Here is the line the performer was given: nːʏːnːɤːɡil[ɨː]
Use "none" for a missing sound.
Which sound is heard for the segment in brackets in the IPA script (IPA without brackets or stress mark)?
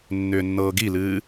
ɨː